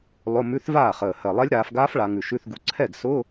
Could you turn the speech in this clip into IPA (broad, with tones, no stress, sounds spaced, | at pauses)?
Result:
lˠ ʊ˧˥˧ m ʉ˧˥˧ θ v aː˥˩ χ əː˨˩ h ɜ˨˩ lˠ ɛ˦˥ lʲ ɾ aː˩˧ f ɡ aː˦˥ f ɭ a˩˧ ŋ ʉ˨˩ ʃ ʉ˧˥˧ θ ɡ u˨˥ ǀʰ ɛ˥˩ ɡ s ʊ˧˥˧